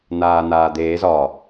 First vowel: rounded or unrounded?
unrounded